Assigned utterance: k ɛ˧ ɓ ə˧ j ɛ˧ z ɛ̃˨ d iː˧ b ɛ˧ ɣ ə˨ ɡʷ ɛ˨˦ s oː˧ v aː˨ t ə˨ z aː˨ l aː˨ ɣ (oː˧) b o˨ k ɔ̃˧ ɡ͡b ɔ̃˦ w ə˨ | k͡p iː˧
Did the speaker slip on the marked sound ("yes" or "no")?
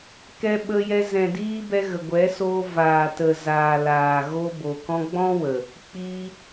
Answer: yes